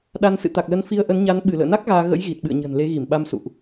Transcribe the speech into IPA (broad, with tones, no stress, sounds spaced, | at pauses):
ɗ a˧ n s ɨ̰˧˨ t̪ a˨˩ k̚ l ə˨˦ n f i˧ ə̯ ʔ ə˨˦ n ɲ a˨˦ n ɓ ɨ˧˩ l ə̰ː˧˨ n a˦˥ k̚ ɣ aː˧ ɣ ə̰˧˥ j ɣ i˨˩ t̚ ɓ ɨ̰˧˨ ə̯ ɲ ə̤˨˩ n l e˨˦ ɣ i˧˩ m ɓ a˧ m s ṵ˧˨ ʔ